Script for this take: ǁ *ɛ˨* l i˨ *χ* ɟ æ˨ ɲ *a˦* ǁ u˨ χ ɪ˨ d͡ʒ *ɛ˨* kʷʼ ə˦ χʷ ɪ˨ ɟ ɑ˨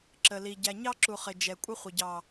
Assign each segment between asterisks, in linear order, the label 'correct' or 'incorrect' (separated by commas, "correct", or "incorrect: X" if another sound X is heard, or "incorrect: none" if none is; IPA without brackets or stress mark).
incorrect: ə˨, incorrect: none, incorrect: ɑ˦, correct